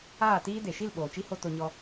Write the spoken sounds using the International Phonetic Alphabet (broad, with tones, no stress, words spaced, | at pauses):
aː˦˨tiː˦ de˨ʃi˦˨l ɓoː˨t͡ʃi˦ho˧ to˧ɲɔ˧